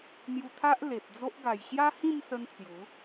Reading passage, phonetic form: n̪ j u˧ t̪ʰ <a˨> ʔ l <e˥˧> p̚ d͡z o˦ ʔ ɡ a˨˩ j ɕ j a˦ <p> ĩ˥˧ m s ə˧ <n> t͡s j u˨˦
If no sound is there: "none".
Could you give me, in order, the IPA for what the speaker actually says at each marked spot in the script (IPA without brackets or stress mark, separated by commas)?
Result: a˦, e˨, h, n